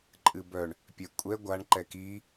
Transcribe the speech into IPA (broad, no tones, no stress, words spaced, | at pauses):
ǃʼɨbœɳ | pʲɛkʷʼɛ ɡʷaɳ ǃɛki